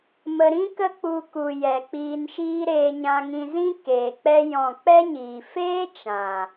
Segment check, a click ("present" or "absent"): absent